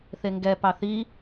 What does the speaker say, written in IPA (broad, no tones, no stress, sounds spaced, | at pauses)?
θ e ŋ ɡ ɛ p ɑ θ i